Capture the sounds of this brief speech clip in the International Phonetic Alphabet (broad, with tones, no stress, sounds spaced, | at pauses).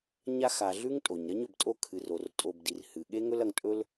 ɲ a˧ x a˨ ɮ ʉ˦ ŋ tʼ o˨ ɲ ɾ ɐ˦ ɲ ɵ˨ b tʼ o˦ kʰ ɨ˨ r o˨ r tʼ o˧ b d i˧ r h ɨ˨ ɠ e˦ ŋ ɵ˦ l ɐ˧ ŋ tʼ ɵ˦ l